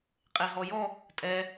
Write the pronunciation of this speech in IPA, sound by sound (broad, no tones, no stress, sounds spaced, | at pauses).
qʼ e ɦ ɔ j ɔ | tʼ ɛ